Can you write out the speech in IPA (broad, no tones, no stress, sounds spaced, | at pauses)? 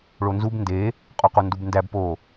ɭ o n z u b n d e | qʼ o q o n d u b n d æ b p o